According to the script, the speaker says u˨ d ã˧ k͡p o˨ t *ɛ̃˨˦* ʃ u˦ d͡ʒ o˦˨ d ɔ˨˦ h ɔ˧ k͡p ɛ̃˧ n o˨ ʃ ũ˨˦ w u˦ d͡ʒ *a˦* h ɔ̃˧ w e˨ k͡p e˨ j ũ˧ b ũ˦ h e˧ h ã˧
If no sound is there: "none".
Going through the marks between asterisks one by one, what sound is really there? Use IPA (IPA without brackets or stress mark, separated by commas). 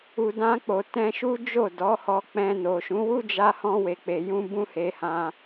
ɛ̃˧, a˧